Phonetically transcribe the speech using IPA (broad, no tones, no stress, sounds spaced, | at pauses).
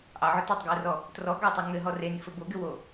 ʔ ɑ ʕ ʊ t ɔ tˤ ɡ j ɘ r ɔ | t r ɔ ɡ ɑ tˤ ø ŋ ɘ ɦ ɔ r e n f ɘ b o ɡ ɘ w o